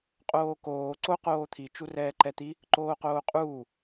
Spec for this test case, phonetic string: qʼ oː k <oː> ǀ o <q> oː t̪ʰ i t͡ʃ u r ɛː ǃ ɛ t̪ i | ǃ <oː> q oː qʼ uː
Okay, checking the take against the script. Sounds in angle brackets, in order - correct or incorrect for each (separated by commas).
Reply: correct, correct, correct